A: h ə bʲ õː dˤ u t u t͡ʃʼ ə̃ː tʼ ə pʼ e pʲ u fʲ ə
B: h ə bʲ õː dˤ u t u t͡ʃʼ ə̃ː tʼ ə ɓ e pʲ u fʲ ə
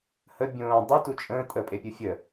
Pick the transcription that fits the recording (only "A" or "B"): A